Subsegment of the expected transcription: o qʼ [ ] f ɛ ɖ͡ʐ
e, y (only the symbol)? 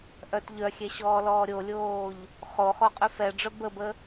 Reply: y